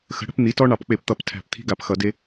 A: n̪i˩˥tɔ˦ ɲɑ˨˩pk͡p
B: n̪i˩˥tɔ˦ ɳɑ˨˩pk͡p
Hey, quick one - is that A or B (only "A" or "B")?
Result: B